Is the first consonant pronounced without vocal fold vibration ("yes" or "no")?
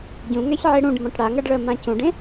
no